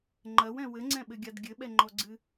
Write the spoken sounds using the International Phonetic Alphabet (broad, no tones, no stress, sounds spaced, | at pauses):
ŋ͡ǃ ɐ w ɛ̃ w ɘ ŋ͡ǀ ɛ̃ ɓ ɘ ɡʲ a d ɡʲ ɘ ɓ ɛ ŋ͡ǃ ɔ ɡ͡ǀ ɨ